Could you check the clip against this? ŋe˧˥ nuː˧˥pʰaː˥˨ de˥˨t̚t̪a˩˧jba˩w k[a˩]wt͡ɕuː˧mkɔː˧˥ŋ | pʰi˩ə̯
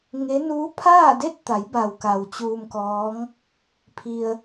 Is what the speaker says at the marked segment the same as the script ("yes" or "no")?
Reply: yes